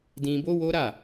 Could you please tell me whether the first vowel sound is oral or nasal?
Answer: nasal